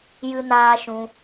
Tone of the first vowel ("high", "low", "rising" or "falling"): high